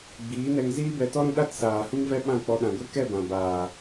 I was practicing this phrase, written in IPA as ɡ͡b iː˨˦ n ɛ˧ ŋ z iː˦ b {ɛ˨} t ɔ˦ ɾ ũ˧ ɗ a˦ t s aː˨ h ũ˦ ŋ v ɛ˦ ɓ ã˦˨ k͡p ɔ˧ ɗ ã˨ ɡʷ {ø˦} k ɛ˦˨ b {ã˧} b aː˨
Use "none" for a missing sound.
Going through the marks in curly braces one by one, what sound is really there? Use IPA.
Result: ɛ˧, e˦, ã˨

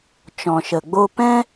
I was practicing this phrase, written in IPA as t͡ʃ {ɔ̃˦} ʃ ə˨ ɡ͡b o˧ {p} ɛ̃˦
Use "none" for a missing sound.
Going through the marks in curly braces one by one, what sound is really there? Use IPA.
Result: ɔ̃˨, p

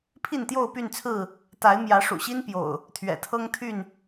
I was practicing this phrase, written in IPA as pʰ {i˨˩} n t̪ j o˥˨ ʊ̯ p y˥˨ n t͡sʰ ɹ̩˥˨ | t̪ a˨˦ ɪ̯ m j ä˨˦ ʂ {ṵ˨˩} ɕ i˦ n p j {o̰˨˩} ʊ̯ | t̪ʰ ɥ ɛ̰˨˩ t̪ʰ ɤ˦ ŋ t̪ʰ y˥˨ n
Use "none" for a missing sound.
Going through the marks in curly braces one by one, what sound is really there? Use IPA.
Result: i˥˨, ṵ˨˩, o̰˨˩

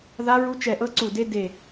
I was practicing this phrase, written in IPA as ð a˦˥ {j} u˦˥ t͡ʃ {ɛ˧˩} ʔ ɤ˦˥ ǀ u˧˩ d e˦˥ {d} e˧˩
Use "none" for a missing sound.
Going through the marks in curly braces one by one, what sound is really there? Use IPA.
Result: ɹ, ɛ˧˩, d

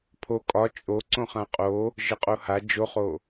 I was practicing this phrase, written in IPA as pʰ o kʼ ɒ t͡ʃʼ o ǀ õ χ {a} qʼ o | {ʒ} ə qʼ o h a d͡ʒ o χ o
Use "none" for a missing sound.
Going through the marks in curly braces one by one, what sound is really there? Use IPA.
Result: ã, ʒ

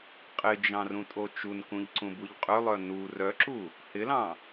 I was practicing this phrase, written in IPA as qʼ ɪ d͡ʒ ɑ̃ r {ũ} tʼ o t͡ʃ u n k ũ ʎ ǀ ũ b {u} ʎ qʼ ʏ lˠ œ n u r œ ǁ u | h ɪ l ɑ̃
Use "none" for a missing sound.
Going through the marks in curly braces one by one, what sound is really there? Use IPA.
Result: ũ, u

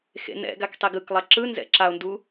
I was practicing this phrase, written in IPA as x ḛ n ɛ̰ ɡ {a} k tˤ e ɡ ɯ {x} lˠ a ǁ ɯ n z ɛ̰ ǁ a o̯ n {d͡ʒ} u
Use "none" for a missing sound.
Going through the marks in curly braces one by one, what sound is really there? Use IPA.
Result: a, k, d

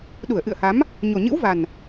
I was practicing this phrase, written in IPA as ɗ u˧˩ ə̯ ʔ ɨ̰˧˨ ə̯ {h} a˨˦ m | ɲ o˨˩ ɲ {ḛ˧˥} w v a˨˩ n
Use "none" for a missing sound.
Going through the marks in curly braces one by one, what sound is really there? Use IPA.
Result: h, ɨ̰˧˥

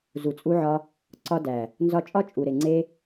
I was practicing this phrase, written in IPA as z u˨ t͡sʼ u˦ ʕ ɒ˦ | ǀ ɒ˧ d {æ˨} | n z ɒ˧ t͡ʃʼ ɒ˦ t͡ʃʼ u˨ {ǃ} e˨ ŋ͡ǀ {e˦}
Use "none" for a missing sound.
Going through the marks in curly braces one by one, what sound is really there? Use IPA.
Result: æ˨, ɾ, e˦

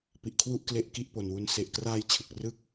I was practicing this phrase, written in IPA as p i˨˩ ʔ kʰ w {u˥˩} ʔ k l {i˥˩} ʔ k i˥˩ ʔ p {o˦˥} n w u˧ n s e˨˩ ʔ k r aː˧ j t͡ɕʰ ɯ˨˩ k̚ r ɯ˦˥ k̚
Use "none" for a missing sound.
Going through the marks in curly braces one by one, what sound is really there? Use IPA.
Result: u˥˩, e˥˩, o˨˩

